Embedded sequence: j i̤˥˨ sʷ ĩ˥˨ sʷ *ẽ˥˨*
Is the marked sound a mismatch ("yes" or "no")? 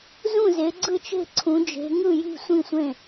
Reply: no